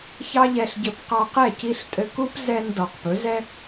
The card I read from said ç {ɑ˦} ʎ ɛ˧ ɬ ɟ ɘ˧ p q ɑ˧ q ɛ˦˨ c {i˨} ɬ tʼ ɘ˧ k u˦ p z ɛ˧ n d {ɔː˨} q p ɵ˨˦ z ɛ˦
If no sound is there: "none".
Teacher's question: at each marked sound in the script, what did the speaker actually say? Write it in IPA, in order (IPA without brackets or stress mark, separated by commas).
ɑ˦, i˧, ɔ˨